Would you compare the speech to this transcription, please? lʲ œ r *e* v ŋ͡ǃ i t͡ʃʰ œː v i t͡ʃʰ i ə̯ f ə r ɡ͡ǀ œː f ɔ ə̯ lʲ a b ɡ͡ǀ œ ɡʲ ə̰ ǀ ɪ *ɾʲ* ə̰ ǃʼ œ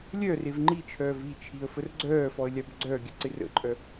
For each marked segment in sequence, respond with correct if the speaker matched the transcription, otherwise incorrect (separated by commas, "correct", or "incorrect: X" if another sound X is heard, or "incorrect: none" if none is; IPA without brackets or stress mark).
correct, incorrect: r